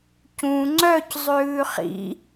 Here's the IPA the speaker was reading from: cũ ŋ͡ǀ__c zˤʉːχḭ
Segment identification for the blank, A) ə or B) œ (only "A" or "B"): B